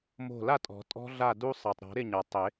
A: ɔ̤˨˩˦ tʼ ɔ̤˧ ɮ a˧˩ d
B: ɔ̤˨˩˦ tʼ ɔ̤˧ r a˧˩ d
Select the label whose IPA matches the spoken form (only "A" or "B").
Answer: A